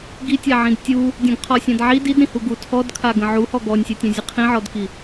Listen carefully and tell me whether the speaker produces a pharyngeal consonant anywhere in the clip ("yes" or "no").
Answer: yes